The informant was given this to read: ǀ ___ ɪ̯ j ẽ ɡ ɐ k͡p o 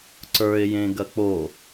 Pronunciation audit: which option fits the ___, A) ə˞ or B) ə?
A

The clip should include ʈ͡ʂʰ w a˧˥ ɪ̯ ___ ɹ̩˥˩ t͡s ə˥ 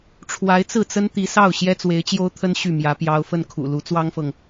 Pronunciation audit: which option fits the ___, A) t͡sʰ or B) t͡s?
B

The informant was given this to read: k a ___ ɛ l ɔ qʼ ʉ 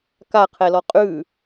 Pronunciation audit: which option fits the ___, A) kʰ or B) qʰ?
B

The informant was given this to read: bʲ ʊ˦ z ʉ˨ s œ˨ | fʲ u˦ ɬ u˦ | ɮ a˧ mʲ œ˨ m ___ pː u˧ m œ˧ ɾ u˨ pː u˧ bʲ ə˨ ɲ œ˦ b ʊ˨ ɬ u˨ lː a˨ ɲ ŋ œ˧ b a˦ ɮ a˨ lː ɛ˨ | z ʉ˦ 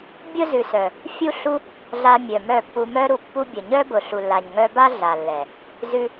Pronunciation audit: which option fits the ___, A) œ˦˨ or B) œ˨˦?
A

